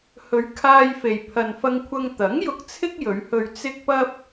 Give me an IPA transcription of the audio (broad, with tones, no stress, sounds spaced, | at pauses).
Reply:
h ɵ˨˧ ɥ kʰ aː˧ j f e˨ j pʰ ɐ˨ n f ɐ˧ ŋ kʷʰ ɐ˧ ŋ t̪ ɐ˨˥ ŋ j ʊ˧ k̚ t͡sʰ ɪ˥ k̚ j ɵ˨˧ ɥ h ɵ˧ ɥ t͡s ɪ˥ k̚ p ɐ˥ p̚